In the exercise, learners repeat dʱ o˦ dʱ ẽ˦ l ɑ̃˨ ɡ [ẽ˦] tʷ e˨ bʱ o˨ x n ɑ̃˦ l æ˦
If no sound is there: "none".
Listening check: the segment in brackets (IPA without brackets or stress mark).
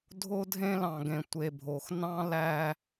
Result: ẽ˨